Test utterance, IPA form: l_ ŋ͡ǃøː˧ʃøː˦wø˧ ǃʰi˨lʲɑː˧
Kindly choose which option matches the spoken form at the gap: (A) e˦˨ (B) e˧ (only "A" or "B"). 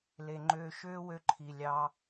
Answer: B